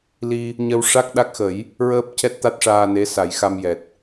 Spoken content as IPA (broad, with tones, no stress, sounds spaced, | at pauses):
l i˧ | ɲ ə˧ w ʂ a˦˥ k̚ ɗ a˦˥ k̚ x ə˨˩˦ j | ɹ əː˦˥ p̚ c ɛ˦˥ t̚ t̪ a˦˥ t̚ ʂ aː˧ n e˧˥ s a˨˩˦ j x a˧ m j ɛ˨˩ t̚